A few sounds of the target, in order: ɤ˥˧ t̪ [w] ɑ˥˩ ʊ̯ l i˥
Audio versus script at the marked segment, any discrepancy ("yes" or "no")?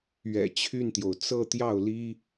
yes